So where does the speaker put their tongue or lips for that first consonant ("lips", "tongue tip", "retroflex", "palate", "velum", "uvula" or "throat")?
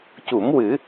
palate